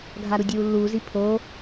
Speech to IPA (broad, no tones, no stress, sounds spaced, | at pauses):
ɡʱ a ɾ u dʲ uː lː uː z i pʰ o